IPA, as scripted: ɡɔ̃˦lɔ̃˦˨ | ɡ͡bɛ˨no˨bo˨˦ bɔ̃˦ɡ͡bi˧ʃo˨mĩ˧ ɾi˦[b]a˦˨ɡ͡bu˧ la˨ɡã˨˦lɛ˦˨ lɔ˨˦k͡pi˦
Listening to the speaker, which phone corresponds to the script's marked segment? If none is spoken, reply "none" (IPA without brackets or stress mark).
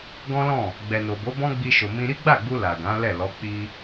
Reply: ɡ͡b